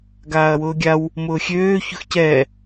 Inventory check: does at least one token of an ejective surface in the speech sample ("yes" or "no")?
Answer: no